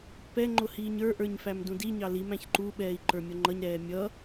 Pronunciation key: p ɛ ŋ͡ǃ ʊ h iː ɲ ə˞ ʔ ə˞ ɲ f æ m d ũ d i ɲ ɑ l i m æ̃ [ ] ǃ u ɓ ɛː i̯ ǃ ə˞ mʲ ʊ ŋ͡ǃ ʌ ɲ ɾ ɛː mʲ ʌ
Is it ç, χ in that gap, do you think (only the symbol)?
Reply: ç